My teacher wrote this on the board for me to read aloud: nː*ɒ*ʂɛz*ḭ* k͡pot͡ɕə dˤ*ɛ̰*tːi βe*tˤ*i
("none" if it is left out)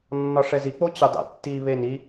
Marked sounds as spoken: ɒ, i, ɛ̰, n

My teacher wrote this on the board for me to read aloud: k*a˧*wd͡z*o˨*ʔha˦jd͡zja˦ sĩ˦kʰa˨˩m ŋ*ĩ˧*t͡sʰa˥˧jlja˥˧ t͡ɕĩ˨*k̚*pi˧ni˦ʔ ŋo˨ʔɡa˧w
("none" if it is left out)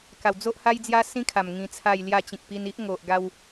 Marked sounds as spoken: a˨˩, o˦, ĩ˧, k̚

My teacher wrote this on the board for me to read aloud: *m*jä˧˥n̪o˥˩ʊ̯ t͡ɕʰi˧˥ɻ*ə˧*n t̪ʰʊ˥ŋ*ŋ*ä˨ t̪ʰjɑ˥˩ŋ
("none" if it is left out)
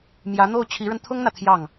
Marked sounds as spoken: m, ə˧, n̪

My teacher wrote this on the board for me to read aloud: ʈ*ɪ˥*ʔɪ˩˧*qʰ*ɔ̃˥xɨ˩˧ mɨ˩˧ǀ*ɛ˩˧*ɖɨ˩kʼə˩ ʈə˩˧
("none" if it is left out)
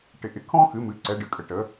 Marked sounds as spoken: ɪ˩˧, kʰ, ɛ˩˧

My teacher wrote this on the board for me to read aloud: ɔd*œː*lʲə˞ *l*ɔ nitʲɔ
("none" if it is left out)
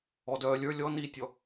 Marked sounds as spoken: œː, lʲ

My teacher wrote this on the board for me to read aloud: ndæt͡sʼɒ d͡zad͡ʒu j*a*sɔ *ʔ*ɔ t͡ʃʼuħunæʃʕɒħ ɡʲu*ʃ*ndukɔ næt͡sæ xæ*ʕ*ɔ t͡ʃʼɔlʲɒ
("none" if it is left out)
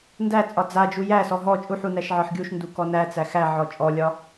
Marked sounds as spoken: æ, ɦ, ʃ, ʕ

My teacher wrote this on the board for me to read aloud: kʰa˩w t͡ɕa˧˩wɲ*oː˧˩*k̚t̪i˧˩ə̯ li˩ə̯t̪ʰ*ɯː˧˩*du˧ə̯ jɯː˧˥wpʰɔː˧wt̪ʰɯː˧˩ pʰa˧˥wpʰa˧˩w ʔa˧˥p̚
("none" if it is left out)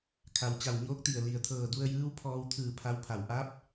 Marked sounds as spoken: oː˧˥, ɤː˧˩

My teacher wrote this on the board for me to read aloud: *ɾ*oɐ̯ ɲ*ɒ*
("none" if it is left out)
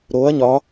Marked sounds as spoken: ɾ, ɒ

